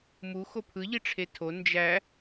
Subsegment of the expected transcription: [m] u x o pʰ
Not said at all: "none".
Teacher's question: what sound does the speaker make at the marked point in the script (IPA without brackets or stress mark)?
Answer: m